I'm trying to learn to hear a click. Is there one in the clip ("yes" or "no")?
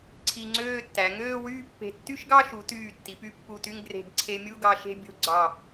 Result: yes